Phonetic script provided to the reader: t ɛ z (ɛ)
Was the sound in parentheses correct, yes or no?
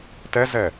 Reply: yes